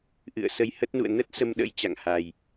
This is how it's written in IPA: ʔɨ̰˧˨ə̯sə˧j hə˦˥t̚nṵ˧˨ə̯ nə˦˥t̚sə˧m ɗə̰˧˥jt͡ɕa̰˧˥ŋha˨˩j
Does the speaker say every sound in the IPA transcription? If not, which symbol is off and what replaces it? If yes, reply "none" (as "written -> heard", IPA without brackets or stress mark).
a̰˧˥ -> a̰˧˨